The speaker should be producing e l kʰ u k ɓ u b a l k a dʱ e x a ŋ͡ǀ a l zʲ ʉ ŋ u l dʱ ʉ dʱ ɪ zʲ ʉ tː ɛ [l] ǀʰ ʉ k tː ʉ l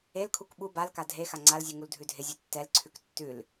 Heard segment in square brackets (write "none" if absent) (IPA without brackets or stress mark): l